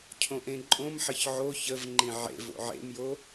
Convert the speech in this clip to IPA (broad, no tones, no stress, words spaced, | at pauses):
cʰõʔẽǃʼõmħəç ʕo çəvŋ͡ǃĩ ʕḛv o̰ʕḛmjo